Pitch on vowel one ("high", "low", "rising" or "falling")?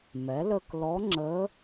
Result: rising